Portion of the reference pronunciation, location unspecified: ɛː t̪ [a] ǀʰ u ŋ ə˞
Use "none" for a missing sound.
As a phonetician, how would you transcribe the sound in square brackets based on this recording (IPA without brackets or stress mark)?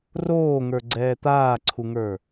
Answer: aː